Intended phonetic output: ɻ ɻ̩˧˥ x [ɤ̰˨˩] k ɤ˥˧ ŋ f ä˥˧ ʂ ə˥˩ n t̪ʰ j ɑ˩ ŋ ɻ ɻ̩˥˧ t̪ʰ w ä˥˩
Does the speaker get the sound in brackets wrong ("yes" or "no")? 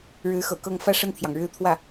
no